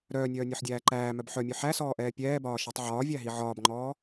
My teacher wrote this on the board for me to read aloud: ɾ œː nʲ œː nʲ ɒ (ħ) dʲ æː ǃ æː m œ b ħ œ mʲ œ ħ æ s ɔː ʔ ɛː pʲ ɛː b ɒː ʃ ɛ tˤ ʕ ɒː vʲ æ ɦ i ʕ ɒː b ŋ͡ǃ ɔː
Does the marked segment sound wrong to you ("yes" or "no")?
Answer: no